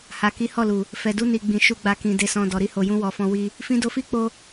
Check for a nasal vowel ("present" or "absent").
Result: present